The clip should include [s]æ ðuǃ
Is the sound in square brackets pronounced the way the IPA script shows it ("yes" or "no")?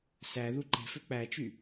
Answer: yes